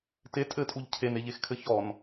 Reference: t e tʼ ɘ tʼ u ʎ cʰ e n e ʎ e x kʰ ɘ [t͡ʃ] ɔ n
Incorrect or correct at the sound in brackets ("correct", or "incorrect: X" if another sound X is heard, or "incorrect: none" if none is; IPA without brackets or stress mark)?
incorrect: ç